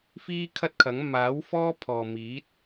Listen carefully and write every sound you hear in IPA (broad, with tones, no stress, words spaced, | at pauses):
fiː˧ kʰɐ˥t̚kʰɐ˨˥ŋ maː˨˥w fɔː˥pʰɔː˨miː˨˥t̚